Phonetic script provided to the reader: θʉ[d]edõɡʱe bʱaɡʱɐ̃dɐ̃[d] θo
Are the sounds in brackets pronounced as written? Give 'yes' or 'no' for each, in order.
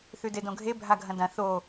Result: yes, no

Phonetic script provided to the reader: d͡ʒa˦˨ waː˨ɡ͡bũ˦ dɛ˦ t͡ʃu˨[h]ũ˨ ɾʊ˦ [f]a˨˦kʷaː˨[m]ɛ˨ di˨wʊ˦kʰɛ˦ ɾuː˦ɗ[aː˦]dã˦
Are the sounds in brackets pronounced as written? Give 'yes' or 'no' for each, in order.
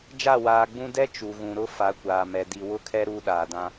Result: no, yes, yes, no

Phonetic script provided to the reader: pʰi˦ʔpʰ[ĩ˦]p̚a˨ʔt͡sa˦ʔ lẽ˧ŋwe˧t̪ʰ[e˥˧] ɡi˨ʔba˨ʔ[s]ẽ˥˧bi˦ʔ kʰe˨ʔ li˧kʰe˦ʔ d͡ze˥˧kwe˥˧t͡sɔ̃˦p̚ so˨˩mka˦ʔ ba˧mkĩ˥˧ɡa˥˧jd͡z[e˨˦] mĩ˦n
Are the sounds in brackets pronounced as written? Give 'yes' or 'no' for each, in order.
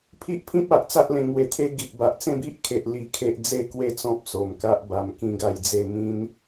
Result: yes, no, no, no

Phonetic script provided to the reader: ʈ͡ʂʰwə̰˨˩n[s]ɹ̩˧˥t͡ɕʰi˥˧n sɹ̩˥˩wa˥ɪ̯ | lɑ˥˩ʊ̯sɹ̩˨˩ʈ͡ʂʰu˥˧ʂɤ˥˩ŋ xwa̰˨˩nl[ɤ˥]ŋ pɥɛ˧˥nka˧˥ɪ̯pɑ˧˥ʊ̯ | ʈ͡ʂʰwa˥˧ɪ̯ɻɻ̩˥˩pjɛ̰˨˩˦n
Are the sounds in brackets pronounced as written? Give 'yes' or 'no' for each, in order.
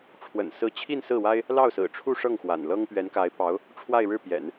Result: yes, yes

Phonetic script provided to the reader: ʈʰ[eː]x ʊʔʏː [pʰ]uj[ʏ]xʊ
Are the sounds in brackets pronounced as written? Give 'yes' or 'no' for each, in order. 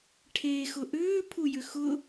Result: yes, yes, yes

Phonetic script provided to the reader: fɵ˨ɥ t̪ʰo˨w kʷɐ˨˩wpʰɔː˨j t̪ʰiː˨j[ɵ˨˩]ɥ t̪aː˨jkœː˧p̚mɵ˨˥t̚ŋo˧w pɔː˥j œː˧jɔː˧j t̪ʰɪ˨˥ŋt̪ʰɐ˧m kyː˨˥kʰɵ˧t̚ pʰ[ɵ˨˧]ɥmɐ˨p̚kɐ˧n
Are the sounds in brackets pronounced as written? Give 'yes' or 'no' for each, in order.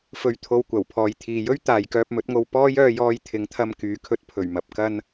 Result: no, no

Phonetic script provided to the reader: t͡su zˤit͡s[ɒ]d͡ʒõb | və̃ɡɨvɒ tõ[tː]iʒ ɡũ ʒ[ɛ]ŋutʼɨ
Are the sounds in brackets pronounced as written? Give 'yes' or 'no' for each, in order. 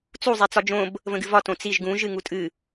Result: yes, no, no

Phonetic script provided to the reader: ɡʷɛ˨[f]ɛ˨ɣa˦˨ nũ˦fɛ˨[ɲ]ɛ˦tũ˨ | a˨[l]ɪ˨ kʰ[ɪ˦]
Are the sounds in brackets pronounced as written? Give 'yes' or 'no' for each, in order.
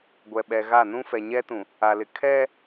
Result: no, yes, yes, no

